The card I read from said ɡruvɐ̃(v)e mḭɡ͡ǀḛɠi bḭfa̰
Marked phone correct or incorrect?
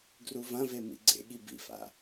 correct